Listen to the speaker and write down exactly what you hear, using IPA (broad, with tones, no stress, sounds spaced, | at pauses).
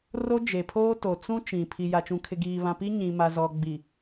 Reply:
r o˦ d͡ʒ e˨ pʰ oː˦ t o˨ t͡s ũ˦ t͡ʃ ĩ˨ pʰ i˨ j a˨ t͡ʃ ũ˨ kʰ ɪ˨ ɡ iː˨ β ã˨ p i˦ ɲ ĩ˨ m a˨ z ɔ˨ ɡ͡b i˨